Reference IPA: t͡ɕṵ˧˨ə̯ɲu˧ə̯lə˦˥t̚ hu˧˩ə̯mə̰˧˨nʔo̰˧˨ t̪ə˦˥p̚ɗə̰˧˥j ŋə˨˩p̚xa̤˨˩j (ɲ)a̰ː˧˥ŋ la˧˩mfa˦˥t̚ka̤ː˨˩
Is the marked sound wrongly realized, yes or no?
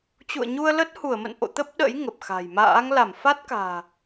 yes